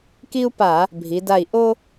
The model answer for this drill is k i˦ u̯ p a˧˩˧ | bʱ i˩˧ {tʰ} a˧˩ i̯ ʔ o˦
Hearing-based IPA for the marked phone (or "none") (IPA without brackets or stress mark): d